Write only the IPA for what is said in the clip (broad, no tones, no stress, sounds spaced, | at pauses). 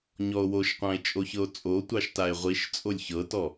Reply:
ɲ ɔ o̯ w o ʃ qʷ ã e̯ t͡ʃʼ o ç ɤ o̯ t͡sʼ o tʷ ɑ ʃ t a e̯ ʁʷ i ʃ t͡sʼ o lʲ ç ɤ t ɔ